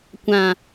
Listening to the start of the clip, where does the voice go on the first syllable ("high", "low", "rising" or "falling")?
low